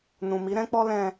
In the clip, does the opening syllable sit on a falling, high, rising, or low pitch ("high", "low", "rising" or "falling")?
low